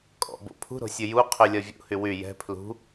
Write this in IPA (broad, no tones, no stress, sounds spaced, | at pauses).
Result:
kʼ ɔ̰ b o̰ pʰ ṳ ɾ o̤ sʲ ɨ j u qʰ y lʲ ɒ vʲ ṵ h y w y j ɛ̤ pʰ l ṳ